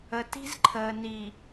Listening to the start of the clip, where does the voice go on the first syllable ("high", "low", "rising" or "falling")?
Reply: low